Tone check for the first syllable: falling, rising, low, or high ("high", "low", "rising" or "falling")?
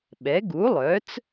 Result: rising